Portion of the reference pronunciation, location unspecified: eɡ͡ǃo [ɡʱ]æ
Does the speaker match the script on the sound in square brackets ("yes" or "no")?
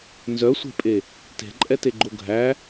yes